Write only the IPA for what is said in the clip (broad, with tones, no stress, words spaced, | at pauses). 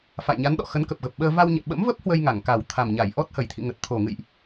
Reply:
fa̰˧˨jɲa˨˦n ɗɔ̰˧˨ xə˨˦nkə˨˩p̚ɣə˨˩p̚ɓəː˧ va˧wɲɛ̰˧˨ ɓə̰˧˥mvə˦˥p̚ hwə˧jŋa˧˩ŋ ka˨˩wt̪ʰa˨˩mɲa˧˩j ʔɔ˦˥t̚ hə˨˩jt̪ʰḭ˧˨ŋə˨˩t̚ t̪ʰo˨˩ŋɨ̰˧˨jʔ